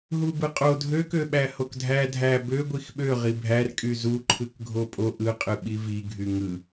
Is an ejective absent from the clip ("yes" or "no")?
no